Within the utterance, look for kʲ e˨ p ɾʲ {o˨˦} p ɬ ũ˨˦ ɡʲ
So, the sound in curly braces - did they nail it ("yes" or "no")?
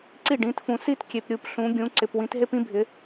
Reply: no